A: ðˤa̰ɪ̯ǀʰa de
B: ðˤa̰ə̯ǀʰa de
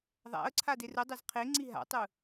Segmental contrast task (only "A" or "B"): B